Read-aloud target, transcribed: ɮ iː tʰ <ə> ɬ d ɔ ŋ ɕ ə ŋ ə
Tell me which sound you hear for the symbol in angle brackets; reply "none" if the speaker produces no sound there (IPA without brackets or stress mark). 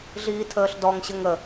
əː